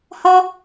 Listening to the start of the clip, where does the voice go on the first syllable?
high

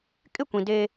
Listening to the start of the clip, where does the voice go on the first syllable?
falling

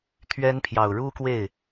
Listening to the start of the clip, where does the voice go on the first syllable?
high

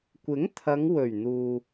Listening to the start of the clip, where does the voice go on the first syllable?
rising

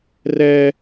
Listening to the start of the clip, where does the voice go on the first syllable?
high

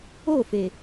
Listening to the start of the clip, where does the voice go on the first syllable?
falling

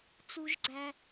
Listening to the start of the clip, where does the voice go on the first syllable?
high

